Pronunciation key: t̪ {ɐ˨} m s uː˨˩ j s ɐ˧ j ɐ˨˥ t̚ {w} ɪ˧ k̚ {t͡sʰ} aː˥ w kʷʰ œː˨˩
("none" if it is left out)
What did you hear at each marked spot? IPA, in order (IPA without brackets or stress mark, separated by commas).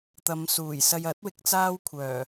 ɐ˨˧, w, t͡s